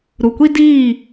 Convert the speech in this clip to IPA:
ɾ u˨ kʷ i˦ d iː˦˨

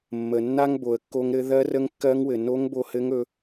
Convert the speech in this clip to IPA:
mː ə˩ nː a˥ ŋ b o˩ ə̯ kː o˧ ŋ ɾ ɘ˧˥ ð ɜ˧˥ r ə˧˥ ŋ kː ɜ˧˥ ŋ w ɘ˩ n o˧˥ ŋ b o˧ h ɘ˧˥ ŋ ɵ˩˧

